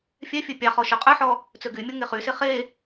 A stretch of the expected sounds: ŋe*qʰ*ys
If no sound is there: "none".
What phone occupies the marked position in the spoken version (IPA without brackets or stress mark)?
χ